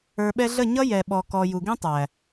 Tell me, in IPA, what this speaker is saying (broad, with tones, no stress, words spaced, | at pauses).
ə˞˨ɓɛ˧ɮə˦˨ ɲʌ˦ jɛ˨ ɓɔ˨kɔ˨ ju˨ɡĩ˦tˤæ˨